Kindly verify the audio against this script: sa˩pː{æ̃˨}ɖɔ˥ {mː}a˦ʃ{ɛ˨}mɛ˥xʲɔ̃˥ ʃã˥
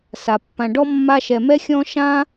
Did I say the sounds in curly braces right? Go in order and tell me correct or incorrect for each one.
incorrect: ã˨, correct, correct

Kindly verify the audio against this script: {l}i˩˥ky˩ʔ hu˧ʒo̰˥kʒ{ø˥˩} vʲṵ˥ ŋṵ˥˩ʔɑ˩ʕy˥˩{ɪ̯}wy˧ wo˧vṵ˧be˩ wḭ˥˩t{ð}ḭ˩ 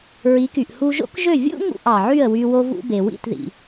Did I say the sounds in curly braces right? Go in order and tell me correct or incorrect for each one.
incorrect: ɹ, correct, incorrect: ə̯, correct

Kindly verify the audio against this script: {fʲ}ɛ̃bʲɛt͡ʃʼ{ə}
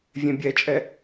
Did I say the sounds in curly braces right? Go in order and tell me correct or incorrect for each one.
incorrect: vʲ, incorrect: ɛ

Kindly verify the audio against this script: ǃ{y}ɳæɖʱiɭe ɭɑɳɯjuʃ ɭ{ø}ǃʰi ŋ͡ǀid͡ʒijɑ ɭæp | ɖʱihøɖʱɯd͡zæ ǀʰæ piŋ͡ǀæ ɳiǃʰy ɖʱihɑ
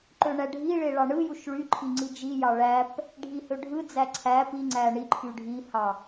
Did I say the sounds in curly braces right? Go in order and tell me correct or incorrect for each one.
incorrect: ø, incorrect: y

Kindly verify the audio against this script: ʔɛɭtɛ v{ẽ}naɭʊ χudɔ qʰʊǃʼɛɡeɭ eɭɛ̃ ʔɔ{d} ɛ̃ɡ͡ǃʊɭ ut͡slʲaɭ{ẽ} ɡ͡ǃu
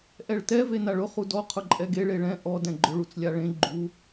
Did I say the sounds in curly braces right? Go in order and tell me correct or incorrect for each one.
incorrect: e, correct, correct

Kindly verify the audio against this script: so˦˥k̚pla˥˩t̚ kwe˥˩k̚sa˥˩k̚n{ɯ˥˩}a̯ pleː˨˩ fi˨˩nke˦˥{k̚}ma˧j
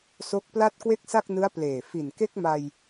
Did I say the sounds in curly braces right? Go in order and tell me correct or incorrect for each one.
incorrect: ɯ˦˥, correct

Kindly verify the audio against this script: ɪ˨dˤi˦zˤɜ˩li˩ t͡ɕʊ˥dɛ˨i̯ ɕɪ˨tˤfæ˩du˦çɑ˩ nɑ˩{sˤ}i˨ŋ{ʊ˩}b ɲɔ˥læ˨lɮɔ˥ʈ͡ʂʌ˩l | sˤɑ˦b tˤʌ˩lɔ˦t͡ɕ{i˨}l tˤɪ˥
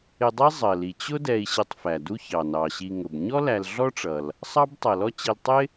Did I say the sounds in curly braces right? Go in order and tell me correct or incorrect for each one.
incorrect: ɕ, correct, correct

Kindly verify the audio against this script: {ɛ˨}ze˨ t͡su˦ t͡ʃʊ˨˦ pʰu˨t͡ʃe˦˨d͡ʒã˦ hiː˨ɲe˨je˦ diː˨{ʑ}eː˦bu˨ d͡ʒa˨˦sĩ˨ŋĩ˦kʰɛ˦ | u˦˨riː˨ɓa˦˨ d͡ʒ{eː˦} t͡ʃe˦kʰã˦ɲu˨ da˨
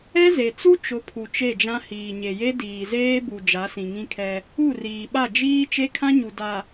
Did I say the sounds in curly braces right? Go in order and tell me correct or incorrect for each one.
incorrect: ɛ˦, incorrect: z, incorrect: iː˦

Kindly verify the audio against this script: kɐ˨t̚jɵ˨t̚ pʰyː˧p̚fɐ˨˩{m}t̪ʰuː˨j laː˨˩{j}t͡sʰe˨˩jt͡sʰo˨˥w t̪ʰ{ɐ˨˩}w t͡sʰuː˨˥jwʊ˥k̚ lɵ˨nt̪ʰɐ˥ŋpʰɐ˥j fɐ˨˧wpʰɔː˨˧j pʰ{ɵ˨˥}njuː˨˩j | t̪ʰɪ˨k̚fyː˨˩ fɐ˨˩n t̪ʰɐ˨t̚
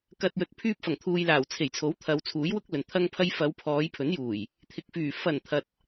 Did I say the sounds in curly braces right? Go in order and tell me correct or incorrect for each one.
incorrect: ŋ, incorrect: w, incorrect: ɐ˨˧, correct

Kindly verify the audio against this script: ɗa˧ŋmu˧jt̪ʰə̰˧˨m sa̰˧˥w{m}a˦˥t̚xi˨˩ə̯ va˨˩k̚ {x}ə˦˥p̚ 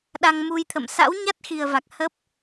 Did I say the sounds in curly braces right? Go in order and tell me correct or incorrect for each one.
incorrect: ɲ, incorrect: h

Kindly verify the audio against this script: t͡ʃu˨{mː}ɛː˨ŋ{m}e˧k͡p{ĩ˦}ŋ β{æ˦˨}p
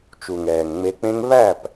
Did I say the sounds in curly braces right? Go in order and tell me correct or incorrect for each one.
incorrect: ŋ, incorrect: ŋ͡m, incorrect: ẽ˦, correct

